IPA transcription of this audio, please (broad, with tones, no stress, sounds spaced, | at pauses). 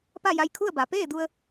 p a˥˨ j a˧ j kʰ u˥˨ ə̯ b a˩˧ p eː˥˨ d u˧ ə̯